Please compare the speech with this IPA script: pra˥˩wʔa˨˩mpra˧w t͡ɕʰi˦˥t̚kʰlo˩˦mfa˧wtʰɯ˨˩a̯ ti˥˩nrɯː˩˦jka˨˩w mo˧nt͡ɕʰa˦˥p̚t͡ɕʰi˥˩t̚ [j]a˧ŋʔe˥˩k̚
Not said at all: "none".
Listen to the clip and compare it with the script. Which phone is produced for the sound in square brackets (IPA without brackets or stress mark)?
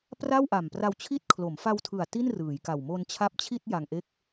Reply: j